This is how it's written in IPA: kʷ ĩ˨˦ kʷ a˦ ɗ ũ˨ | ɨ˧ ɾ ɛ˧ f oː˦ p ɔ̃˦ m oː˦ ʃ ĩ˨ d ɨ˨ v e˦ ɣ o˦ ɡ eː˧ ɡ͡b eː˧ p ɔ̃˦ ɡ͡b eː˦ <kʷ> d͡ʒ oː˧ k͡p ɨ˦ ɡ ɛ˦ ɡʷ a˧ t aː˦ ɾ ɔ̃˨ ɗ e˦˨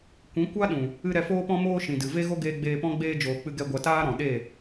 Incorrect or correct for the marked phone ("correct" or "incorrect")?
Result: incorrect